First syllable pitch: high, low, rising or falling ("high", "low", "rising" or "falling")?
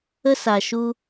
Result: high